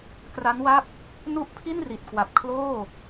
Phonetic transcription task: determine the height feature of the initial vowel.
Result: low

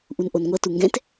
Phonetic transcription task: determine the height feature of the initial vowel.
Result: high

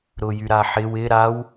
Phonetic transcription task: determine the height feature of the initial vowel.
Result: high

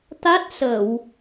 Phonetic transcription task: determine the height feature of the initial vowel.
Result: low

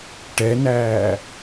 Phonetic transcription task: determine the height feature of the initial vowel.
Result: mid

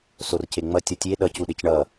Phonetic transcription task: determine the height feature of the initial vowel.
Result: mid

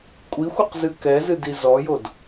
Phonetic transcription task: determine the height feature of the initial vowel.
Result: high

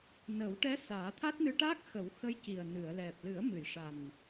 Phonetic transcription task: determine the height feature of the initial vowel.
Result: mid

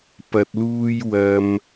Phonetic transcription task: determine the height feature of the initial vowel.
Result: low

